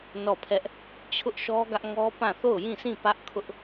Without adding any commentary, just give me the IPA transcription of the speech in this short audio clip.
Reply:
n ɔ˦˨ pʰ ɛ˦ ʔ | t͡ɕʰ ʊ˦ ʔ ʃ ɔ˦ ɡ ä˦ ʔ ŋ ɔ˦ p ã˦˨ θ o˦˨ ʊ̯ j ĩ˦˨ sʰ ĩ˦˨ p ä˦ ʔ kʰ ʊ˦ ʔ

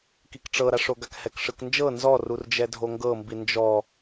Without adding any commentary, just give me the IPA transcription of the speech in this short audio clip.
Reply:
k i k ʈ͡ʂ ɤ ɾ a ʂ o ɡ a k h ɛ k ʂ ɯ k n d͡ʒ ɤ n z ɔ r u r d͡ʒ ɛ dʱ o ŋ ɡ ɤ m b i n d͡ʒ ɔ

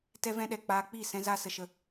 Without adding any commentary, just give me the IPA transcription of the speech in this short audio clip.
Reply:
t ɛ˦ v ɛ̃˦ ɗ ɛ˨ k͡p aː˧ k͡p i˦˨ s ɛ̃˦ z a˦ s ə˨ ʃ ə˧

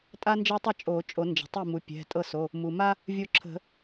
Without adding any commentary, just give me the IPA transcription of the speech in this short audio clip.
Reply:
tʼ a˦ n d͡ʒ ɤ˦ tˤ ə˥˩ t͡ʃʼ o˨˩˦ t͡ʃʼ o˨˩˦ n d͡ʒ ə̤˩ tˤ i˥˩ m u˩˧˩ pʲ ɛ̤˩˧˩ tʼ ɤ˥˩ s o˩˧˩ | m u˩ m a˦ | vʲ o˥˩ ǁʰ ə̤˨˩˦

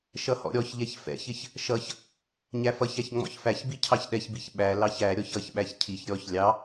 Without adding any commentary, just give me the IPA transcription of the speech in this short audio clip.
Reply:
ʃ ʌ h ɔ̰ ɾʲ ɔ ç ʎ ɛ ç f ɛ̰ ç ɪ ç | ʃ ʌ ç | ɲ æ f ʌ ç æ ç ŋ͡m ɔ̰ ç f æ ç b i cʰ ɑ ç ɗ ɛ ç b i ç ɓ æ l ɑ ç æ ɾʲ ɔ ç ʌ ç ɓ æ ç cʰ i ç ɾʲ ɔ ç lʲ ɑ

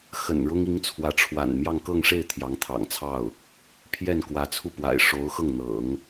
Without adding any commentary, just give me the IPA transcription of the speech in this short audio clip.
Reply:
x ə̰˨˩ n ɻ ʊ˥ ŋ i˧˥ ŋ t͡sʰ w ä˧˥ ʈ͡ʂʰ w a̰˨˩ n m j ɑ˥˧ ŋ k ɤ˥˧ ŋ ʂ e˥˩ ɪ̯ t̪ʰ j ɑ˧˥ ŋ t̪ʰ ɑ̰˨˩ ŋ t͡sʰ ɑ˥˩ ʊ̯ | pʰ j ɛ˥˩ n k w ä˧˥ t͡sʰ u˥˩ p w a̰˨˩ ɪ̯ ʂ o˧˥ ʊ̯ x ɤ˥˩ ŋ n̪ ɤ̰˨˩˦ ŋ

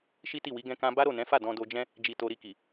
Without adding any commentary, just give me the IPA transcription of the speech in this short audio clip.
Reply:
ʃ i˦ t i˦˨ w i˨˦ ɡ ɛ̃˦ k ã˦ b a˦ ɾ o˦˨ n ɛ̃˨˦ f a˦˨ d ɔ̃˧ d o˧ d͡ʒ ɛ̃˦ | d͡ʒ i˧ t o˧ ɾ i˧ k i˨

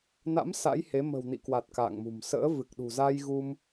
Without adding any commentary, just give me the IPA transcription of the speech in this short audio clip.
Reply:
n a̰˧˥ m s a̰˧˥ j h e˨˦ m ə̤˨˩ w n ḭ˧˨ k w a˨˩ t̚ k a̰ː˧˨ ŋ m ṳ˨˩ m s ə̰ː˧˥ v ɨ˨˩ k̚ ɗ ṳ˨˩ z a˧ j ɣ u˧ m

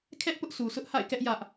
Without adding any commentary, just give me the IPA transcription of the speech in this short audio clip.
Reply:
kʰ ɛ˦ ʔ p ʊ˦ ʔ s u˨ s ʊ˦ ʔ h a̰˦˨ ɪ̯ k ɛ˦ ʔ j ä˦ ʔ

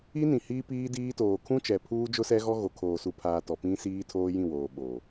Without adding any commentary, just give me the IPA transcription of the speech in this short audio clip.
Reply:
i˦ n ĩ˨ h iː˦ p iː˦ d iː˦ t oː˨ kʰ ũ˦ t͡ʃ ɛ˨ pʰ uː˦ d͡ʒ ʊ˦ s ɛ˦ ɣ ɔ˦ ɣ o˨ kʰ oː˨ s u˨ pʰ aː˨ t ɔ˨ p ĩ˦ s iː˦ tʰ oː˦ j ĩ˦˨ w oː˨ ɓ oː˨

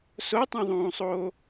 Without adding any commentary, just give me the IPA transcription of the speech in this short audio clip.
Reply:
s o tˤ ũ ðˤ ũː sˤ oː

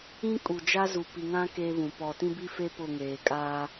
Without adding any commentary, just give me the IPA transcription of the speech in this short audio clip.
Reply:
ĩ˦ kʼ u˨ d͡ʒ a˦ z u˨ p i˨ ŋ ã˦ k eː˦ β ũ˨ p ɔ˨ t ĩ˦ b i˦ f e˦ p ʊ˦˨ ŋ eː˨ kʼ aː˦

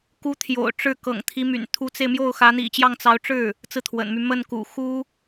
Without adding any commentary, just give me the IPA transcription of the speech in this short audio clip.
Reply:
k u˧˥ t̪ʰ j o̰˨˩ ʊ̯ ʈ͡ʂ ɻ̩˥˩ k ɤ̰˨˩ ŋ t̪ʰ i˧˥ m y̰˨˩ n t̪ʰ u˧˥ t͡s e˧ ɪ̯ m j o˥˩ ʊ̯ x ä˧˥ n̪ ḭ˨˩ t͡ɕ j ɑ˥˩ ŋ t͡s ɑ˧˥ ʊ̯ ʈ͡ʂ ɻ̩˥˩ | t͡s ɹ̩˥˩ t̪ʰ w ə̰˨˩ n m y˥˧ m ə˥˩ n k ṵ˨˩ x u˥

